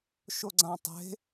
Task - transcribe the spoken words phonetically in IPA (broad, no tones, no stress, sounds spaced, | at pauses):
ʃ o ɡ͡ǀ ã tˤ e̤